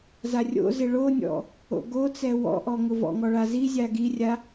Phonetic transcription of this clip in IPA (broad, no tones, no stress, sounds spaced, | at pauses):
z a rʲ o̰ z ɪ ɭ o nʲ ɔ̰ | o̰ ɡ o t͡s ɛ w ɔ̰ ʔ ɔ ŋ ʊ v ɔ̰ ŋ ɔ ɭ a z i zʲ a ɡ i rʲ a